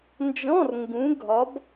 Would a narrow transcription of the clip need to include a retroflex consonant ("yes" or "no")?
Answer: no